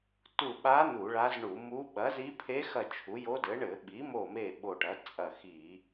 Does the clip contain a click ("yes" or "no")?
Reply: no